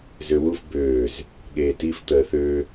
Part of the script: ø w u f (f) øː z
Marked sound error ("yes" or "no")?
yes